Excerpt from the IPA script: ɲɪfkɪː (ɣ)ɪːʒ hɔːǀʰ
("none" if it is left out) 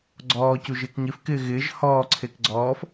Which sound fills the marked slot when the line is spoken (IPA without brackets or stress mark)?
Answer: ɣ